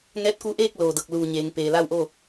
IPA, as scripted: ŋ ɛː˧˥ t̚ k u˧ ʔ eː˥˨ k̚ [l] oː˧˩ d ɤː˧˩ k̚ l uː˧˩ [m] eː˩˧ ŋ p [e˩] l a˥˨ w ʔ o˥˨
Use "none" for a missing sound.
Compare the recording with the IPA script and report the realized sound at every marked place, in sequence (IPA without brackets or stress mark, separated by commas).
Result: l, ɲ, eː˩